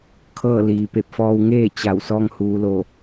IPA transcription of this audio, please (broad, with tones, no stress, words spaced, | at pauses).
kʰɤː˥˨ liː˩pe˧˩p̚fɔː˧w ŋeː˥˨ t͡ɕa˧˩w sɔː˧ŋhuː˩˧lo˧˩